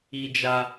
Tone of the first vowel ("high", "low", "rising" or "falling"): high